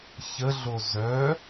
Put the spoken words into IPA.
çəɮo zœ

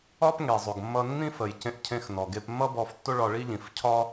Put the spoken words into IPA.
ɒ˥p ŋe˩zˤo˩ɡmːʌ˧nːĩ˥ fə˩jcẽ˧ʔ cʰẽ˧xnɔ˩ ɡe˧pmːʌ˥bɔ˧ftːo˥ ɭɒ˧ɭi˥ʎĩ˩fcʰɒ˥

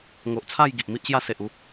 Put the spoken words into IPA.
ŋo˨ʔt͡sʰa˥˧j ɡi˨ʔmi˦ʔɕja˦ se˨ʔu˥˧

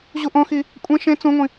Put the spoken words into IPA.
ʑuʔõxi | kʷʼẽ ʃẽ t͡sũŋʷĩ

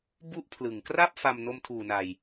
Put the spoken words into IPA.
bu˥˩ʔpʰlɯ˩˦ŋ kra˥˩p̚ fa˧m no˧mtʰuː˨˩na˨˩j

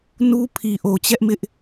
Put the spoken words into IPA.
nu˦ pʰi˨ʔo˨t͡ɕɛ˦ʔmɪ˦ʔ

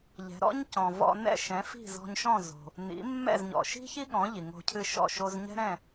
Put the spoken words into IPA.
ʎɛ̤˩˥ ɾɔ̰˥ɲcɔ̃˩ vɔ̰˧ nɛ̰˥˩ʃɛ̃˩˥ fi̤˥˩zɔ̤˧ɲʃɔ̃˥˩ zo̤˩ | nḭ˩˥mːɛ̰˥˩zɲɔ̰˩ʃi̤˥ çi˥ɠɔ̃˩˥ ʎi˩ŋo̤˧cʰɨ˥˩ʃɔ̰˥˩ ʃo˧z ɲɛ̤˥ɾɛ̃˥˩

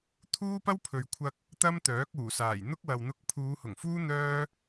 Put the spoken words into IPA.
t̪ʰuː˥pɐ˥wpʰɵ˨ɥkʷʰɐ˧k̚ | t̪ɐ˥mt̪œː˨˥k̚uː˨˩saː˨˩j n̪ʊ˥k̚wɐ˨w n̪ʊ˧k̚ pʰuː˨˧hʊ˨˩ŋfuː˥ n̪œː˥

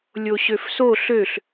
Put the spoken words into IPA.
lʲoɕøfso ɬøɬ

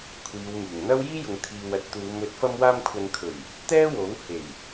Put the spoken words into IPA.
kʷʰiː˨˧wmyː˨˩ŋ n̪ɐ˥wjiː˥jʊ˨ŋ t̪ʰiː˨w ɐ˧t̚t̪uː˨˧mɵ˨˥t̚ fɐ˧mwaː˧mkʷʰɐ˨nkʰɵ˨˩ɥ | t̪ɛː˥wo˨˥w he˨˩j

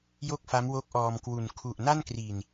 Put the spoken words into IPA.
jo˥˩k̚fa˦˥mwo˦˥k̚ ʔɔː˧mkwu˨˩n kʰu˨˩ʔna˥˩nkri˨˩n

